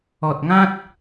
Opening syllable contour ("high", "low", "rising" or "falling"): low